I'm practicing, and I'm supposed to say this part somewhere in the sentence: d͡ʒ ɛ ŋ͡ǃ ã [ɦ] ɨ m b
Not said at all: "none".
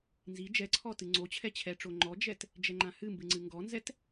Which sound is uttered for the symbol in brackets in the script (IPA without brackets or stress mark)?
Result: h